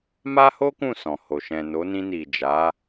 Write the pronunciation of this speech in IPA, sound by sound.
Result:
m a˦ h o˦ k ũ˦˨ s ɔ̃˨ h o˨ ʃ ɛ̃˨ n o˨˦ n ĩ˧ n i˨ d͡ʒ a˨˦

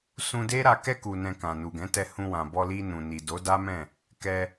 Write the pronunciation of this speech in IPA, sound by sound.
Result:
s ũ˧ d e˦ ɾ a˧ k ɛ˧ k u˨ n ɛ̃˨ k ã˨ n u˨ ɡ ɛ̃˨˦ t ɛ˧ h ũ˧ w ã˨ b ɔ˧ l i˧ n ũ˨ n i˨ d o˨˦ d a˦ m ɛ̃˦˨ | k ɛ˧

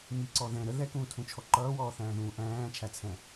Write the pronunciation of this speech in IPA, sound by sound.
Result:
m i ǀ ɔ ð ɛ̃ ɾ ə ð ɛ k ũː tʰ ũ t͡ʃʰ ɔ ǃ ʌː w ɔː θ æ̃ː ð ũː ʔ æ̃ː t͡ʃʰ æ t͡sʰ ɛ̃

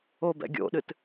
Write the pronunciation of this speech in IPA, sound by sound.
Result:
o b ɛ̰ ɡʲ o̰ ɗ ɨ t

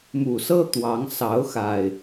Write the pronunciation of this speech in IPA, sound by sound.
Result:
m u˨˩ s ɤ˦ t̪ w ɑ˨˦ ŋ s ɑ˨˦ ʊ̯ x a˨˩ ɪ̯

